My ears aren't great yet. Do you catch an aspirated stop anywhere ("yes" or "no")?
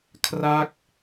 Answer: yes